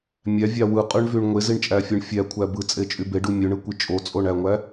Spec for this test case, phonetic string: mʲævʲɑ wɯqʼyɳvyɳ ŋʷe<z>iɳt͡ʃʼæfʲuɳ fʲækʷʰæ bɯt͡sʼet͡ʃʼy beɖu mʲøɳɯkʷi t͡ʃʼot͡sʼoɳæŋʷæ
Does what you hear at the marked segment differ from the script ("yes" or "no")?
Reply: no